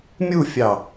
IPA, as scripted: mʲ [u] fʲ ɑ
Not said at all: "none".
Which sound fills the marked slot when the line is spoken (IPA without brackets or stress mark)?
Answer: u